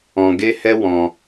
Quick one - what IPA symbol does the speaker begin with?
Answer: ɔ̃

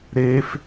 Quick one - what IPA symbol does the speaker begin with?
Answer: ɾ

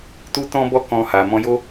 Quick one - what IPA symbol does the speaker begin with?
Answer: t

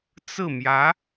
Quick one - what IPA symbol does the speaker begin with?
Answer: t͡s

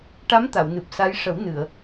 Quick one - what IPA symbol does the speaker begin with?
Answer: ʈ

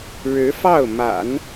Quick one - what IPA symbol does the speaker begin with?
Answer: ɻ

